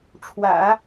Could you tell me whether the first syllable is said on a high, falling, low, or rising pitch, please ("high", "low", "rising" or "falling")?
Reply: low